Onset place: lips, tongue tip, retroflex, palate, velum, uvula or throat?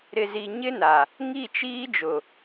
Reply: tongue tip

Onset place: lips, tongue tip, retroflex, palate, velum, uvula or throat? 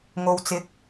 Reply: velum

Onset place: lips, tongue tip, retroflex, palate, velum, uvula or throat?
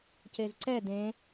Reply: palate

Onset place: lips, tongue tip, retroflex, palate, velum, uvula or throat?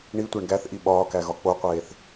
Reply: retroflex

